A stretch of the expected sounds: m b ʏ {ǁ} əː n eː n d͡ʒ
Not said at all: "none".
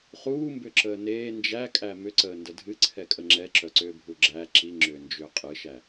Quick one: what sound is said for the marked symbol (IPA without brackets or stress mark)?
ǁ